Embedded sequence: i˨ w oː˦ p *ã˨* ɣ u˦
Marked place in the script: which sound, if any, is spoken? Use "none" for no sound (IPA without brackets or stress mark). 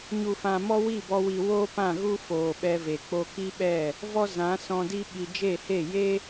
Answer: ã˦˨